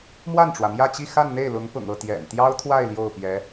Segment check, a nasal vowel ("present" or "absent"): absent